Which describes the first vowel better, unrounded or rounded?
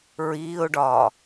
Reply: unrounded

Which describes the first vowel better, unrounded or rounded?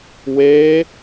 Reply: unrounded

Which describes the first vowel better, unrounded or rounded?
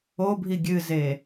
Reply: rounded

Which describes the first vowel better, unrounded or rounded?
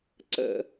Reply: unrounded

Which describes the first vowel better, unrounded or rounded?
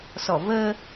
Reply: rounded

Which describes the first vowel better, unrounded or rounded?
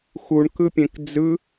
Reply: rounded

